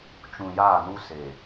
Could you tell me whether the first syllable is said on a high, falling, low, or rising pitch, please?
low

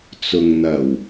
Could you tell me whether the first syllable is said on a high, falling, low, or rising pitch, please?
low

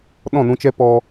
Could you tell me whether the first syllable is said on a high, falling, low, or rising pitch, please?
falling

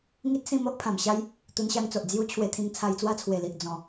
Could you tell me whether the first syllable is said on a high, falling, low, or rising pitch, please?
high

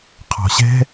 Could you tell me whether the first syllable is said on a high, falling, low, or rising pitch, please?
low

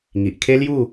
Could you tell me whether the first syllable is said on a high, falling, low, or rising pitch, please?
low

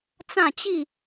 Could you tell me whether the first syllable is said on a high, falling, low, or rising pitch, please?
falling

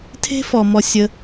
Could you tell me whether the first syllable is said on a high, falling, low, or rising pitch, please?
high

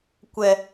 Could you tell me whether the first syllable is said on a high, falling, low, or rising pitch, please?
high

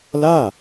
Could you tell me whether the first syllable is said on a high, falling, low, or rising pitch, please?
falling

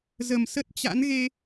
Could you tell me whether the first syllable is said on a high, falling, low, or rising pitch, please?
low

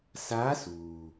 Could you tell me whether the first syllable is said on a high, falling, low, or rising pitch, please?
rising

